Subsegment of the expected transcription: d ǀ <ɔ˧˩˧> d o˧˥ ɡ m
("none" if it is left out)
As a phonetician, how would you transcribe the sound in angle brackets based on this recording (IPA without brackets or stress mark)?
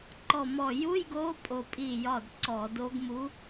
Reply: ɔ˧˩˧